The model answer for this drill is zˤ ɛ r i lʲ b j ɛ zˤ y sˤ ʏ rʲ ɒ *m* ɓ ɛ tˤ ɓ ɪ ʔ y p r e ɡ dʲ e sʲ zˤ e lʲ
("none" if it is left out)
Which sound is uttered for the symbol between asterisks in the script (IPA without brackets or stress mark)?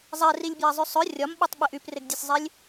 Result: m